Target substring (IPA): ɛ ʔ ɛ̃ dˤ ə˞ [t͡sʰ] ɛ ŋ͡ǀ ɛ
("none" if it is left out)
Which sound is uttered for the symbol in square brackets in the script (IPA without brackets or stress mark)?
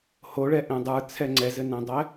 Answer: t͡sʰ